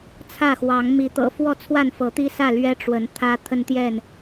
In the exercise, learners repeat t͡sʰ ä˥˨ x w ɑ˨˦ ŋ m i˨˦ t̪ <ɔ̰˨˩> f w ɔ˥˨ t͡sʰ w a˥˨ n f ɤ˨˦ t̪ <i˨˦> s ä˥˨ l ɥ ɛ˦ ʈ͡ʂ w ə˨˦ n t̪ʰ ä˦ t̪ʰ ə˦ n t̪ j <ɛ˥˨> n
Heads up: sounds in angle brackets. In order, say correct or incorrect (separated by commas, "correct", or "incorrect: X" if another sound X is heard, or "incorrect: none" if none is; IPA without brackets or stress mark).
incorrect: ɤ̰˨˩, incorrect: i˦, correct